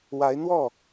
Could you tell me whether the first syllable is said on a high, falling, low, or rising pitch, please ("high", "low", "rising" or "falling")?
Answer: rising